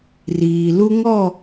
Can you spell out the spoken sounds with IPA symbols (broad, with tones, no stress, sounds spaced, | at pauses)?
r iː˨ l u˦ ŋ ɔ˦˨